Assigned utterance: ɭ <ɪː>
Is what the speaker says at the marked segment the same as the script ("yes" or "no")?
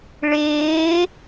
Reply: yes